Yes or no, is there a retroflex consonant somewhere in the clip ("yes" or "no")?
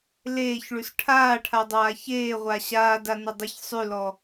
yes